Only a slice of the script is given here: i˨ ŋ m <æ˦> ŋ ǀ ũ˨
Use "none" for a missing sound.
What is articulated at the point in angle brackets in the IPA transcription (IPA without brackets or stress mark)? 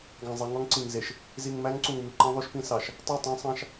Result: æ˦